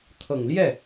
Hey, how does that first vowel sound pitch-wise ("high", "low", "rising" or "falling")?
low